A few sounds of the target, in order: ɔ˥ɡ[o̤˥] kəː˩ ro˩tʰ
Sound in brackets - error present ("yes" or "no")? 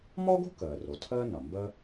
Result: no